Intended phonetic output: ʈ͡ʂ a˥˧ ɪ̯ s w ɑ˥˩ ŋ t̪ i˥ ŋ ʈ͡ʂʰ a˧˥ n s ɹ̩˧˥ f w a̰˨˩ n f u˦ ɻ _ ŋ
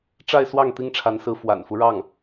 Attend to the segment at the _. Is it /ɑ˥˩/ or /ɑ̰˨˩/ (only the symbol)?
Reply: ɑ˥˩